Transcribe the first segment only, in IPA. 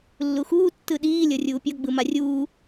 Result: lː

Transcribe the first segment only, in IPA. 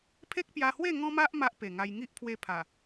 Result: pʰ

